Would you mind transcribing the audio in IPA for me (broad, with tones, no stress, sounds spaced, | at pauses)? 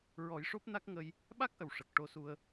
ɹ ɔ˨˩˦ j ʂ o˦˥ p̚ n a˦˥ k̚ ŋ ə˧ j | ɓ a˦˥ k̚ ʔ ə˨˩ w ʂ ə˨˩ k̚ ʈ o˧ s u˧ ə̯